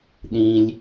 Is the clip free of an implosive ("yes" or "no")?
no